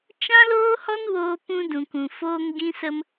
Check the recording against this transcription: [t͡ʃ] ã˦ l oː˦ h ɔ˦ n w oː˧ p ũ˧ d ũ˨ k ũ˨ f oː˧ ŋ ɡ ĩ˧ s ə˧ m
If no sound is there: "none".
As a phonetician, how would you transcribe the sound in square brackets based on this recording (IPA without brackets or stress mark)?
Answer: t͡ʃ